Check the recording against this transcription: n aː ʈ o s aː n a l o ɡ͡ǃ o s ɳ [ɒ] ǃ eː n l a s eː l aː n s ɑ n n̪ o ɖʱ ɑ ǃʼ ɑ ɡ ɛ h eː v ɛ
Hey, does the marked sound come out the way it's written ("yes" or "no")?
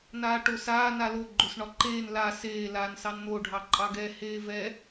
yes